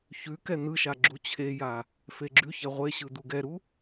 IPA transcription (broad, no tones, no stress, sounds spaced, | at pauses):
ç ʉ k ɛ n̪ ɯ ʃ a ɡ͡ǁ u t͡ɕʰ e j a | f e ɡ͡ǁ ʉ ç ɛ ʁʷ e ɕ ɯ d̪ u ɡ ɛ ɾ u